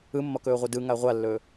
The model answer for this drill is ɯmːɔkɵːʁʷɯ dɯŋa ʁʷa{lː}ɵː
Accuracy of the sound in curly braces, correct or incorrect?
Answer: correct